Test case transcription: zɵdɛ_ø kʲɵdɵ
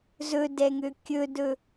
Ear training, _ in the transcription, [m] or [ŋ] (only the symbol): ŋ